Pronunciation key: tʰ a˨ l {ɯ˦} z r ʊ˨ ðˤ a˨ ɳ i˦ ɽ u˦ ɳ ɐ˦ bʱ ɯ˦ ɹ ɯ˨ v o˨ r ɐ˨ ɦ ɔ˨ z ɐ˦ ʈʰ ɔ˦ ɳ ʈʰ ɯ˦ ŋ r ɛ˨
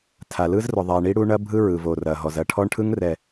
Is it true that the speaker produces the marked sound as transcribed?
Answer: yes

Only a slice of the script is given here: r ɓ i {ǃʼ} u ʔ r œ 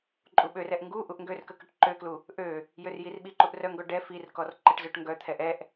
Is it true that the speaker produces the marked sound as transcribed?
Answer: no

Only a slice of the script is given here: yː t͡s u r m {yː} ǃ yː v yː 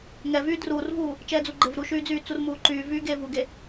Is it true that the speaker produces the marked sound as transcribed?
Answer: no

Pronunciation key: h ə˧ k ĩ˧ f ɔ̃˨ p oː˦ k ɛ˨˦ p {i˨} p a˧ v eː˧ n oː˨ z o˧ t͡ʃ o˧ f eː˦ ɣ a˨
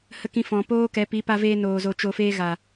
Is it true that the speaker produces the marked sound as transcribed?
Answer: no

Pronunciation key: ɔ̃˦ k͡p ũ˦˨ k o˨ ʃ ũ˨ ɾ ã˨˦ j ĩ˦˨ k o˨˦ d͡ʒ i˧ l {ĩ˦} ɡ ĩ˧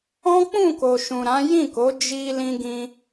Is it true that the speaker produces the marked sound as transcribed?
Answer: no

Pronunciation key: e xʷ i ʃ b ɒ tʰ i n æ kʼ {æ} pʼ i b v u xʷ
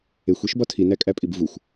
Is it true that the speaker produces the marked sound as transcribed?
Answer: yes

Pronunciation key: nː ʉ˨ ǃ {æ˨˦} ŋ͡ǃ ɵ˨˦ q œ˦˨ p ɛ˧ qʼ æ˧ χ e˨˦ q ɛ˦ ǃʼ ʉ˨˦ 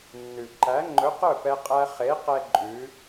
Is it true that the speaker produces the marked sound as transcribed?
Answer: yes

